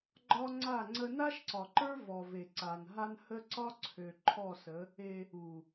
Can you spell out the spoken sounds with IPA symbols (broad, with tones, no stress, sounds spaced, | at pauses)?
ɡ͡ǃ ɒ˦ ŋ͡ǀ a˦˨ ŋ͡ǀ ə˦ n a˦ ʃ ǀ ɒ˨ ǃ ə˞˦ v ɔ˨ v e˨ ǀ a˨ n ɦ a˦ n h ə˦ ǀ ɒ˦ ǀʰ ø˨ ǃʰ ɔ˦˨ s ə˨˦ | e˦ | u˨